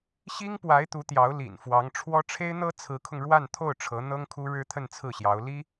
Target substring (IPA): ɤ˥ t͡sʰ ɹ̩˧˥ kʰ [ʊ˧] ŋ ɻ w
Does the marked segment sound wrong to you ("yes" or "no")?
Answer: no